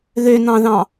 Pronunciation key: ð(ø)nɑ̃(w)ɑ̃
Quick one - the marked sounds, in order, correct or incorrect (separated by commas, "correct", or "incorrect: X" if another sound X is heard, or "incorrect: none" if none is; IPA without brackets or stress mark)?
correct, incorrect: ð